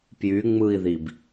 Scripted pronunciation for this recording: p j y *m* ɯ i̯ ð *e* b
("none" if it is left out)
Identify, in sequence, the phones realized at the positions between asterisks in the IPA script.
ŋ͡m, i

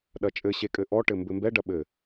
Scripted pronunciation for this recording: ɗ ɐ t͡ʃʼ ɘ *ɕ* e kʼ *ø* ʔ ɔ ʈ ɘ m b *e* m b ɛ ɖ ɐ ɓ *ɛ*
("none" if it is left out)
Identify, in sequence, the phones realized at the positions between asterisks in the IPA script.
ɕ, ɘ, ɘ, ɘ

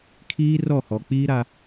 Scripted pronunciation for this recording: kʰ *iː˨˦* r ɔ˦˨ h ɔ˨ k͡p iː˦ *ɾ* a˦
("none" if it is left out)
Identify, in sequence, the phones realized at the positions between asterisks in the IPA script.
iː˦, ɾ

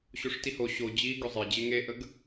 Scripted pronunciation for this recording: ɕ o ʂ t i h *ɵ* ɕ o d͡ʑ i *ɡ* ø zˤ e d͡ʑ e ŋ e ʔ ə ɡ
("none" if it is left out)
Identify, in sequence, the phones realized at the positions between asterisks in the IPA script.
o, ɡ

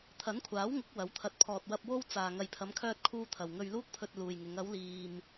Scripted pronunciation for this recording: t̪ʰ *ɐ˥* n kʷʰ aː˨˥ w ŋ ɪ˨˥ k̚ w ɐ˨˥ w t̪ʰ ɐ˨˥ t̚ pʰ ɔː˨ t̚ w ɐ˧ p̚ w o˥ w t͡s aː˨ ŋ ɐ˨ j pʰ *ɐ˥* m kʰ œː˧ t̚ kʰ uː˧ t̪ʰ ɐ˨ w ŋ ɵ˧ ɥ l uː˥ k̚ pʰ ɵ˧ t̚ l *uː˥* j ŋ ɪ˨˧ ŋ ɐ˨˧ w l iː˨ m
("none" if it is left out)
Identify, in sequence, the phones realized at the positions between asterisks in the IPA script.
ɐ˨˥, ɐ˨˧, uː˨

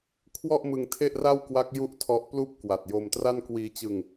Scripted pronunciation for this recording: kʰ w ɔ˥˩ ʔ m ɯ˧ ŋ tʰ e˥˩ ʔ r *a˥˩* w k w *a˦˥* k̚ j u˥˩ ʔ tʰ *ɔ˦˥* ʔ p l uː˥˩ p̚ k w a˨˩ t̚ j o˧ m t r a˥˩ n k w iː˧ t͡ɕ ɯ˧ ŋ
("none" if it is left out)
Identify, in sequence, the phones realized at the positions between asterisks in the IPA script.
a˥˩, a˦˥, ɔ˦˥

